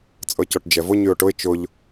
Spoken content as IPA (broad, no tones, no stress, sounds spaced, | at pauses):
t͡sʼ ɤ c ɔ ʈ d͡ʒ ɛ v ʊ ɲ y ʊ̯ ʈ ʊ ɪ̯ t͡ʃ ʊ ʎ